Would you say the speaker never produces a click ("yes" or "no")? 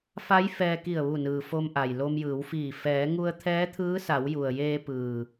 yes